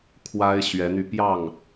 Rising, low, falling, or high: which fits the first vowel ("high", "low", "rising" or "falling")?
high